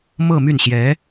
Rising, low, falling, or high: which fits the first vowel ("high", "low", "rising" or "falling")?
falling